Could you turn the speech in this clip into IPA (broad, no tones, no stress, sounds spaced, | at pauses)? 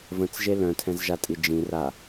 v ə̃ t͡s ʒ e l œ̃ tʰ ɛ̃ z ʒ a tʼ i d͡ʒ ĩ r a